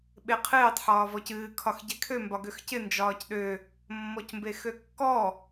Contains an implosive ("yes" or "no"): yes